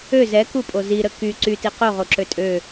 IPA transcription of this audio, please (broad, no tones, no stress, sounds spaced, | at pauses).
ø z ɛ k u pʼ o z i ɾ ə k y ǀ y t i q o ʁ o ǁ ø tʼ ø